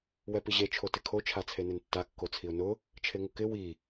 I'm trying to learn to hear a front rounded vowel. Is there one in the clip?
no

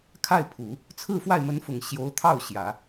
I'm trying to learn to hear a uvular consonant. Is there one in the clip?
no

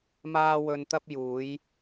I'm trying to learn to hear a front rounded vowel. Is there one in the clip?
no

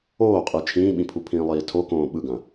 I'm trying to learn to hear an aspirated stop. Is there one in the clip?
yes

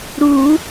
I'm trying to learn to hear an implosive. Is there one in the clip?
no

